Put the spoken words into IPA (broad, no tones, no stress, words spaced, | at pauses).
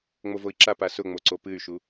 ŋ͡movoi̯ǁap asʊŋ͡moǀo pɨy̯ʃu